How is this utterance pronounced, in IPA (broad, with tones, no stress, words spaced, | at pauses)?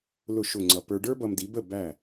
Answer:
lʊ˥˩ ʃʊ˥˩ŋ͡ǀʌ˧ pə˞˧ ɖə˞˥bʌ˧mdi˩˥bə˥˩ bæ˥˩